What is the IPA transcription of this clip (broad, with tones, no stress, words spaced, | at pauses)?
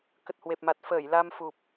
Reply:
kə˨˩t̚hwe˨˩p̚ma˨˩t̚ fəː˧˩j la˧mfu˨˩p̚